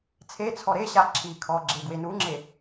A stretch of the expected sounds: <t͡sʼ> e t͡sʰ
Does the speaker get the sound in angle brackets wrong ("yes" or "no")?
yes